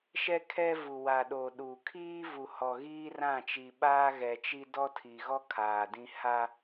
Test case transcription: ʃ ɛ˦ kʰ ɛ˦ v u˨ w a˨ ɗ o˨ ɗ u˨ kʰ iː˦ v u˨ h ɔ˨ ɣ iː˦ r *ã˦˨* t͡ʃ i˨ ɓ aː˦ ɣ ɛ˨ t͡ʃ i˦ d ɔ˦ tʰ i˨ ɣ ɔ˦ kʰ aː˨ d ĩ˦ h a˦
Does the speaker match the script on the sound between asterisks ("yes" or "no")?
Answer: yes